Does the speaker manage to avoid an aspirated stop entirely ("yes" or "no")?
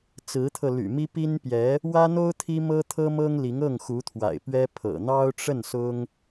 no